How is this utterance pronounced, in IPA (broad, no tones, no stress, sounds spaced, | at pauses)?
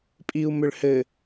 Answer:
pʼ i u̯ m ʏ ɭ h ɘ